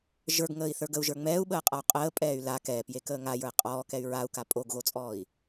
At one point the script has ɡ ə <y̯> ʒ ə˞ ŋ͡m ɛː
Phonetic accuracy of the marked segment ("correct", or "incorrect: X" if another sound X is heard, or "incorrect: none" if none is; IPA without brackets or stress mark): incorrect: u̯